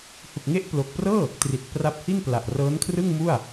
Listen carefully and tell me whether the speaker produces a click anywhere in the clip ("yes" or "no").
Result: no